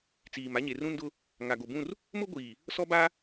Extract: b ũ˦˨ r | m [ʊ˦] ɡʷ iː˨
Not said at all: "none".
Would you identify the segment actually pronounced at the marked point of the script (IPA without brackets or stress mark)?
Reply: ʊ˦